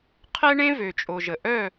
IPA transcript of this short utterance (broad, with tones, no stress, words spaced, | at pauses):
qʰɛ˦ ɳẽ˦vø˨t͡ʃʼo˨ʒə˨ ʔœ˦˨